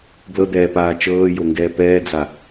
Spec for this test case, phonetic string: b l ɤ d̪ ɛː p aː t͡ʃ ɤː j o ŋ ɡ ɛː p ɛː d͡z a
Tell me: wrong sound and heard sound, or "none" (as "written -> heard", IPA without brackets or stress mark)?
none